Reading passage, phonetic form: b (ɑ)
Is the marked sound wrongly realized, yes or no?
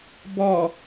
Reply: yes